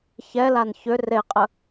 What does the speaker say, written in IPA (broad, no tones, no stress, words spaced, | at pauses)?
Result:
çɛlan çʏ reqʼə